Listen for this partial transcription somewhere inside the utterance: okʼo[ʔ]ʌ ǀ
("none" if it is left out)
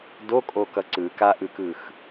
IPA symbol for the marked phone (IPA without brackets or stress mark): k